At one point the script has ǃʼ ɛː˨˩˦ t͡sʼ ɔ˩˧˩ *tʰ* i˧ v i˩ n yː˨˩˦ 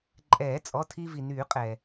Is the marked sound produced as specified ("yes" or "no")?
yes